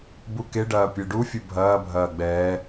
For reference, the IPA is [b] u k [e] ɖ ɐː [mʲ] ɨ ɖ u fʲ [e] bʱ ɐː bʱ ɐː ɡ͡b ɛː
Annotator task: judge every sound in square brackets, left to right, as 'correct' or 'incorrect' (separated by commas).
correct, correct, incorrect, incorrect